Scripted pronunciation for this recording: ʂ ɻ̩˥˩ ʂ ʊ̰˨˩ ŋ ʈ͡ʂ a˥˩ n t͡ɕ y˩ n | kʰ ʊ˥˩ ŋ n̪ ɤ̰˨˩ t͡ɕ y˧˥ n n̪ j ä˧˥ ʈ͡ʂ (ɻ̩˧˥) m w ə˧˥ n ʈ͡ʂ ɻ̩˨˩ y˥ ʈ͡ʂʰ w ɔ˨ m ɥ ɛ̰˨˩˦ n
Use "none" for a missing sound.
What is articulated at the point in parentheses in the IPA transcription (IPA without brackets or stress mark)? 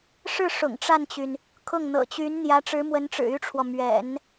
ɻ̩˧˥